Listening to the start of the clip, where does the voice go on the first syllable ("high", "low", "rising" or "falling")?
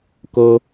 high